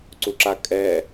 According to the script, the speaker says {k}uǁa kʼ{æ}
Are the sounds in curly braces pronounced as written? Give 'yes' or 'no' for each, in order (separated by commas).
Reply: no, no